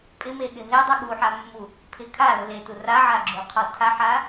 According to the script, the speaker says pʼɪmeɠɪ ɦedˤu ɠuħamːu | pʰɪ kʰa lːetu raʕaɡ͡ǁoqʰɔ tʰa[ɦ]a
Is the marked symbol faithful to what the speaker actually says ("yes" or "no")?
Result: no